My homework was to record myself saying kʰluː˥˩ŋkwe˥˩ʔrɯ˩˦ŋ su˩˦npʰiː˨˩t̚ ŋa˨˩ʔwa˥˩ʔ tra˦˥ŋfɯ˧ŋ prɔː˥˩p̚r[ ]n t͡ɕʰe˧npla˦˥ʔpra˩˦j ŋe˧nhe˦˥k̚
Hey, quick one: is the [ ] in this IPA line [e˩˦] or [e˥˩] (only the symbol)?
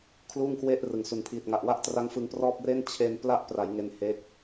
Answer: e˥˩